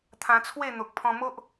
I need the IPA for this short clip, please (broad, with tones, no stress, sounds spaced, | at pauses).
t̪ʰ ã˧ t͡sʰ w e˥˧ n̪ o˨ k̚ pʰ ɔ̃˧ m o˦ ʔ